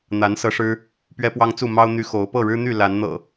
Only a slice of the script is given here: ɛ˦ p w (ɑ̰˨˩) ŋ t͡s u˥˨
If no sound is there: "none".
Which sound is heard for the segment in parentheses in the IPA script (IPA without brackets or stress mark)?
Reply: ɑ˦